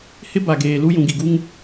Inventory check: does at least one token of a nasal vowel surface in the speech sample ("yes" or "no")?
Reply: yes